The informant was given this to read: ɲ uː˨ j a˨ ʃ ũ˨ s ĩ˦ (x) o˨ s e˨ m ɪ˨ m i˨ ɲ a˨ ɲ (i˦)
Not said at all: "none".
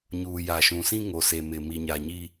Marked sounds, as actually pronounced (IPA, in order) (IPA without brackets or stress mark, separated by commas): ŋ, i˦